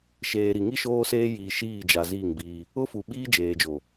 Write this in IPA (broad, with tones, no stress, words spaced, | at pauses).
ʃeː˨ɾi˨ŋi˦ ʃoː˦seː˦jiː˨ ʃiː˦˨d͡ʒa˨ ziː˦˨ŋbiː˦ | ʊ˦fu˨ɓiː˦ d͡ʒeː˨d͡ʒo˨